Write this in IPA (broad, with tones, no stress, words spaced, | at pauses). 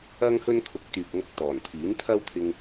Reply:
ɐ˥ŋhɵ˥n kʰʊ˧k̚ t̪yː˨k̚ŋɐ˧k̚ t̪ɔː˨˩nt̪ʰiː˨˥nt̪ʰɐ˥wt̪ʰɪ˧ŋ